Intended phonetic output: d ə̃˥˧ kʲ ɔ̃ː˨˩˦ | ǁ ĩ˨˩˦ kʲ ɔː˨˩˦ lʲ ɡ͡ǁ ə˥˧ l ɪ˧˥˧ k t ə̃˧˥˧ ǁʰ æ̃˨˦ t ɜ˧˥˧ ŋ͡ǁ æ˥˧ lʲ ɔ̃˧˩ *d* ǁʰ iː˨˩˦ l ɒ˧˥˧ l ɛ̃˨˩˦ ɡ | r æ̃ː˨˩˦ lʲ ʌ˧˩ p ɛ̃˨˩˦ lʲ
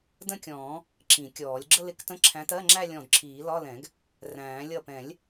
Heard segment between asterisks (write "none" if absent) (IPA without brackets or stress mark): d